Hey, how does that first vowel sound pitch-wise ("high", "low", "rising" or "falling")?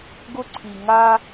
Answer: high